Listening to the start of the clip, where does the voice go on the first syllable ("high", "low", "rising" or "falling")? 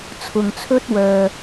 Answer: low